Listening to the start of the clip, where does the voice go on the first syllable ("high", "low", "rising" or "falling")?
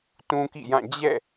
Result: high